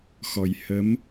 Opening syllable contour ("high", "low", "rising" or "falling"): low